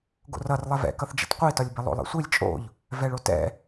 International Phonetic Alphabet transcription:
ɡ o̰ r ʌ r lˠ ɛ v ɛ̰ k ʌ θ d͡ʒ ḭ t qʷ i t ɒ lʲ b ɛ lˠ o̰ lˠ ɛ̰ sʷ i lʲ t͡ʃʼ o̰ ʎ | v ɛ ɭ o t ɛ̰

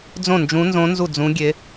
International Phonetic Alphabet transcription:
d͡z õ˥˩ n d͡ʒ ũ˧˥ n z õ˧˥ n z u˥˩ d͡z ũ˧˥ ɡʲ e˧˥

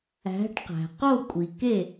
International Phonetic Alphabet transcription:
æ̤˩˥ ʈ q æ̤˩ q o˥˩ kʷʼ i˩ k e˥˩

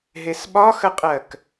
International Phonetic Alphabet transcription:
ɦ e s ɓ ɒ x ə qʼ ɜ k

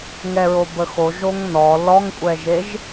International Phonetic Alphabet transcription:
ŋ ɛ ɹ o b ə x o ʒ o ŋ n ɔ l ɔ ŋ kʷʼ ɛ ʒ e ʒ

